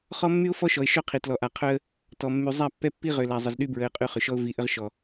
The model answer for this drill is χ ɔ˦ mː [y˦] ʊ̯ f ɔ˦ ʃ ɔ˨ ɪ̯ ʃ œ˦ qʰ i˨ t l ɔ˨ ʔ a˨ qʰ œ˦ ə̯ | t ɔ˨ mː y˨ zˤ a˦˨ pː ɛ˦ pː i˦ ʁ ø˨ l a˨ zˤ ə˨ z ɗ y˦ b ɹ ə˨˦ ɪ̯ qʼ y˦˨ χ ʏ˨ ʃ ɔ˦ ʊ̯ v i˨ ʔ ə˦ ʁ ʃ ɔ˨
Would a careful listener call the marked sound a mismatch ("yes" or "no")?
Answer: no